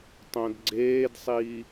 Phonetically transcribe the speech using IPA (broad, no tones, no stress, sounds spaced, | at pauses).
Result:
tˤ õ d ɡ͡ǀ eː d sˤ iː